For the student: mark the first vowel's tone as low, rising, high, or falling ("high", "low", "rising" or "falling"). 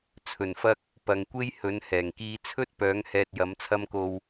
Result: low